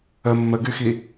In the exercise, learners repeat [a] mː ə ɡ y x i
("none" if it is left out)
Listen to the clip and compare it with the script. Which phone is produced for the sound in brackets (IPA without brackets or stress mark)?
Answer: ə